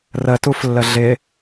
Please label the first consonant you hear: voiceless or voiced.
voiced